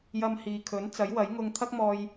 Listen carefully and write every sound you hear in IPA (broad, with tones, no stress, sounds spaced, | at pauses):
j ɐ˧ m h iː˨ kʰ ɵ˨˥ n t͡s ɐ˨˥ j w ɐ˨˥ j ŋ ʊ˧ ŋ t̪ʰ ɐ˥ k̚ m ɔː˧ j